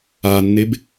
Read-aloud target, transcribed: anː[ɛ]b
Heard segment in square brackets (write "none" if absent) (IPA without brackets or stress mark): e